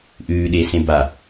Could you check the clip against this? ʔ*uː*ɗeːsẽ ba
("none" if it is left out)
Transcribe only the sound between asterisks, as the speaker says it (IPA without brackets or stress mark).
ʉː